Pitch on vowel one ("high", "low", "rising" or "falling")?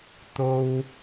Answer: high